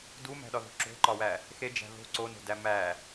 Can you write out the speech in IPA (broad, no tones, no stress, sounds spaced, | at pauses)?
d u m æ̤ ɗ ɒ ð o̤ ǁ o̤ ǃ ɒ w æ | x e d͡ʒ æ̤ ð o̤ ǀ o n o̤ d æ m æ